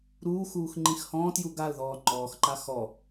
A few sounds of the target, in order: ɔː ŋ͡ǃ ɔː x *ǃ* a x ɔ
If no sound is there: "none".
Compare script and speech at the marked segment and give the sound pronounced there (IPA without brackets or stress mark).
ǃ